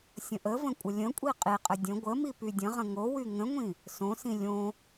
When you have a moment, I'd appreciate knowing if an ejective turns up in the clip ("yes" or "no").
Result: yes